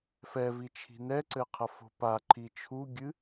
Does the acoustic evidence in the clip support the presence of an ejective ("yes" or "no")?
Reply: no